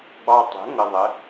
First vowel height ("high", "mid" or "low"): low